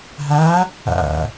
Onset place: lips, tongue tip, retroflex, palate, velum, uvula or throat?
throat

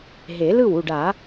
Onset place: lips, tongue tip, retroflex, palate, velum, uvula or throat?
throat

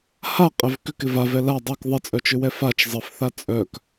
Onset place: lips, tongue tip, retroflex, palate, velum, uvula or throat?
throat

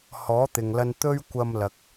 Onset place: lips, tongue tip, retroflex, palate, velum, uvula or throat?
throat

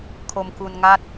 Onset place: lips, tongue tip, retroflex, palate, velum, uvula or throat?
velum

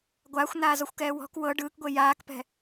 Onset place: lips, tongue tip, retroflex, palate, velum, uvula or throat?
velum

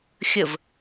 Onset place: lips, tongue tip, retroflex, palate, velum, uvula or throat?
velum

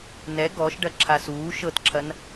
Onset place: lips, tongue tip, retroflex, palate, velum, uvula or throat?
tongue tip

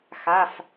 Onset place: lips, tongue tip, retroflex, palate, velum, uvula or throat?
velum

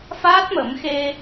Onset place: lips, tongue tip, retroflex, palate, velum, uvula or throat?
lips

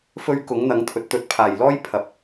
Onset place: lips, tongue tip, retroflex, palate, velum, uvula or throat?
lips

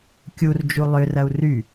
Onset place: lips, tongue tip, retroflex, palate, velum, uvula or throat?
velum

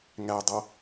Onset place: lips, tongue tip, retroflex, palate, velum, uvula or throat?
velum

